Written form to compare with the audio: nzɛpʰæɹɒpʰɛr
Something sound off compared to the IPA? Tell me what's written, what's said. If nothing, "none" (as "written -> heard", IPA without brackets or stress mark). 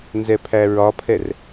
none